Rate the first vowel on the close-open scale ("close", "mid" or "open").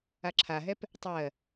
open